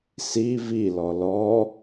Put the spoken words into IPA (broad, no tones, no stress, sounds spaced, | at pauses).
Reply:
s i v i l ɔ l ɔ